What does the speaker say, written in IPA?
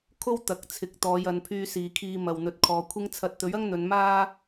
kʰ o˥ w t̪ ɐ˨˥ k̚ t͡sʰ ɪ˨˥ k̚ t̪ ɔː˨˧ j ɐ˨˧ n pʰ yː˧ s iː˨ kʰ iː˧ m ɐ˨ w n̪ ɵ˨ t̚ kʰ ɔː˨ kʷʰ ɪ˥ ŋ t͡sʰ ɐ˨˥ t̚ t̪ ɵ˨˥ ɥ ɐ˥ ŋ n̪ ɵ˨˧ n m aː˥

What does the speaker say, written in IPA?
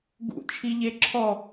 ɡ ṵ t͡ʃʰ i ʎ e ǁʰ ɔ

